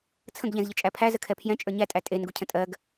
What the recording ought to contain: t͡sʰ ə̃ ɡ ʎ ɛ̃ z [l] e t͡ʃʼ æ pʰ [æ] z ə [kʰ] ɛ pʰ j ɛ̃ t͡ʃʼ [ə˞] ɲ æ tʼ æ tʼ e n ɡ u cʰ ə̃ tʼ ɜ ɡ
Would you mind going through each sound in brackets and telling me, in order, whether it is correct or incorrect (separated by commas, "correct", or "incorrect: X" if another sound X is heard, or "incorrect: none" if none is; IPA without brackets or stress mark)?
incorrect: ʎ, correct, correct, correct